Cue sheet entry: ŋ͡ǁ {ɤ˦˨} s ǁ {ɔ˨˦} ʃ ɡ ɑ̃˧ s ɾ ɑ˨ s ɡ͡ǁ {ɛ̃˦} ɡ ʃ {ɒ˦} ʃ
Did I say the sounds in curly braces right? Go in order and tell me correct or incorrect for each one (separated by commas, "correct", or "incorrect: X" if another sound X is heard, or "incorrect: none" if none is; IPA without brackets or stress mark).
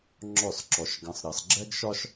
incorrect: ɔ˦˨, incorrect: ɔ˨, incorrect: ɛ˦, correct